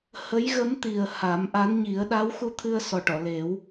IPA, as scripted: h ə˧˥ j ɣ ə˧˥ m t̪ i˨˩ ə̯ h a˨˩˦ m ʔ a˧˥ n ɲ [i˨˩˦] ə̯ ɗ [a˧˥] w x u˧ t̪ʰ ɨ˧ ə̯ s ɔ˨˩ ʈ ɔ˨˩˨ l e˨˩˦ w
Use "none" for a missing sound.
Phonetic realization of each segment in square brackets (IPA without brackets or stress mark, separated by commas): i˨˩˦, a˧˥